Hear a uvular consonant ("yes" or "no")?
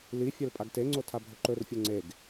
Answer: no